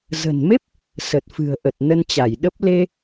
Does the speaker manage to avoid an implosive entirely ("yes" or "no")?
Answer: no